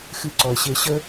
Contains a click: yes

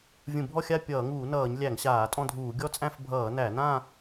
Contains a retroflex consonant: no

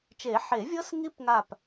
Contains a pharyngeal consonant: yes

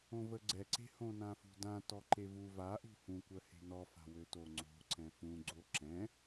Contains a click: yes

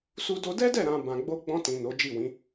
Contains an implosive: no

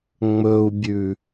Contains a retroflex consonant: no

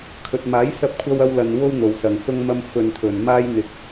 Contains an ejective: no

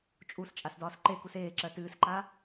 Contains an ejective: yes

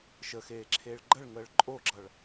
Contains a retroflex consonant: yes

